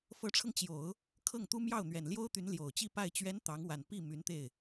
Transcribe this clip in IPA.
f ɤ˧˥ ʈ͡ʂʰ ɤ˧ ŋ t͡ɕ j o˨˩˦ ʊ̯ | kʰ ɤ˥˩ ŋ t̪ u˥ m j ɑ˥˩ ʊ̯ n̪ ɥ ɛ˨˩ n l j o˥ ʊ̯ t̪ y˧˥ n l j o˨˩ ʊ̯ t͡ɕ i˥˧ p a˥˩ ɪ̯ t͡ɕ ɥ ɛ˧˥ n t̪ ɑ˧˥ ŋ w a˨˩ n p i˥˩ m y˧˥ n t̪ e˥˩ ɪ̯

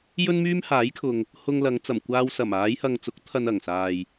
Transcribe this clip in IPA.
j ɵ˥ n m yː˥ m h aː˨˥ j kʰ ʊ˨ ŋ | h ʊ˧ ŋ l ɐ˨˧ ŋ t͡s ɐ˨˩ m kʷ aː˧ w s ɐ˨˩ m aː˨˧ j h ɐ˨ ŋ t͡s ʊ˨˥ k̚ t̪ʰ ɐ˧ n ɐ˨˩ ŋ s aː˨ j

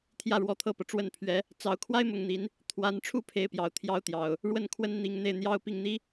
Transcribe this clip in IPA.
t̪ʰ j ä˥˩ ɻ w ɔ˧˥ t̪ʰ ɤ˥˩ p ɤ˩ ʈ͡ʂ w ə˥˩ n pʰ ɥ ɛ˧˥ | t͡s ɑ˧˥ ʊ̯ kʰ w a˥ ɪ̯ m ʊ˥˩ ŋ n̪ i˧˥ n | t̪ʰ w a˧˥ n ʈ͡ʂʰ u˥˩ pʰ e˥ ɪ̯ p j ɑ˧˥ ʊ̯ t̪ʰ j ɑ˥ ʊ̯ t̪ j ɑ˨˩˦ ʊ̯ | ɻ w ə˥˩ n kʰ w ə˥ n n̪ i˧˥ ŋ n̪ e˥˩ ɪ̯ n̪ j ɑ˥ ʊ̯ p i˥˩ ŋ n̪ i˥

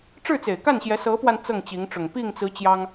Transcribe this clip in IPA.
ʈ͡ʂ ɻ̩˥˩ t͡s e˨˩ ɪ̯ k a˥˩ n ɕ j ɛ˧˥ s ɤ˧˥ p w a˧ n t͡s ɤ˥˩ ŋ t͡ɕ i˧˥ ŋ ʈ͡ʂ ʊ˨˩ ŋ p i˥˩ ŋ t͡s ɹ̩˧˥ t͡ɕ j ɑ˥ ŋ

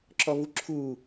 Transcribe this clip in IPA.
ǁ ɔ v u ǁʰ uː

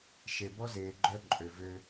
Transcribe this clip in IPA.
ʃ e˨ b ɔ˦ z eː˨ ɡ͡ǃ œ˦ ǃʼ ø˨ v ø˦

